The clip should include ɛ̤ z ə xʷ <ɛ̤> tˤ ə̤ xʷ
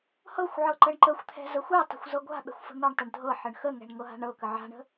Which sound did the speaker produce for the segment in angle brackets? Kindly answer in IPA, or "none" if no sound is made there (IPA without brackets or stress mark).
ɛ